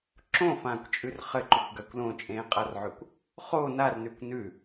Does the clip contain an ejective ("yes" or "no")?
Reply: yes